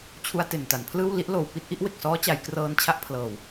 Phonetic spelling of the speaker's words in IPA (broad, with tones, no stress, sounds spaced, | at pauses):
t͡ɕʰ u˧ a̯ t e˨˩ n t a˩˦ n pʰ l ɯː˥˩ w l i˦˥ ʔ l oː˨˩ w p i˥˩ t̚ ʔ i˥˩ ʔ w e˨˩ k̚ s ɔː˦˥ t͡ɕ a˩˦ j k r ɤː˧ n t͡ɕʰ a˦˥ ʔ pʰ l ɤː˨˩ w